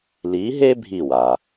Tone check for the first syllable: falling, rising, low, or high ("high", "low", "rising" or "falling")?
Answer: rising